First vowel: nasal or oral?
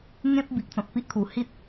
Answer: nasal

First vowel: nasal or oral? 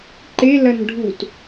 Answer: oral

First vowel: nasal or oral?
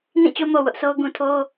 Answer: nasal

